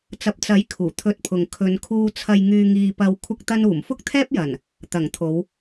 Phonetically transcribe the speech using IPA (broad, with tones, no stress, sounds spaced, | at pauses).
t͡s ɐ˨ p̚ t͡s ɐ˨˥ j kʰ uː˨˩ t̪ʰ ɵ˧ t̚ pʰ ʊ˨ ŋ kʰ ɵ˨˧ n kʰ uː˧ t͡sʰ ɐ˧ j ŋ yː˧ ŋ iː˧ p ɐ˧ w kʷʰ ɐ˥ k̚ t̪ ɐ˥ n uː˨˩ m f ʊ˥ k̚ t̪ʰ ɛː˥ p̚ j ɐ˨˩ n | t̪ ɐ˨˩ ŋ t̪ʰ o˨˧ w